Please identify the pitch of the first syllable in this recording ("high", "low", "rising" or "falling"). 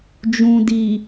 low